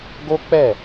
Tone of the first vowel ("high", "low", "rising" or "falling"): high